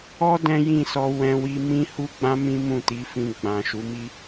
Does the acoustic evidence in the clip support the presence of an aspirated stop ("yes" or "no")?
no